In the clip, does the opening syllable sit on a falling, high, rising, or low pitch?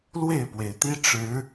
falling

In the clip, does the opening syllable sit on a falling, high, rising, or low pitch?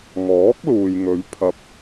rising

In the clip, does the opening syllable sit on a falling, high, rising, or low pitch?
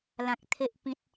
low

